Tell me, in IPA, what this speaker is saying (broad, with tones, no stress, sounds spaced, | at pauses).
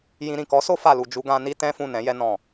j ĩ˧ ɾ ĩ˨ k ɔ˨˦ s o˧ f a˨ l u˨ d͡ʒ u˧ ɡ ã˧ n i˦ t ɛ̃˦ f ũ˦˨ n ɛ̃˨˦ j ɛ˧ n ɔ̃˨